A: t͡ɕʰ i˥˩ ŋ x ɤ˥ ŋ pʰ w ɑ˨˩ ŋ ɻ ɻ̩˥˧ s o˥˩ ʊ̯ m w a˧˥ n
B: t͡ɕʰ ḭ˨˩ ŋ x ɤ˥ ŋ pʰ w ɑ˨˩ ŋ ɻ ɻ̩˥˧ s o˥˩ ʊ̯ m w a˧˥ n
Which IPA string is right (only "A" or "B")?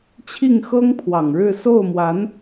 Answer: A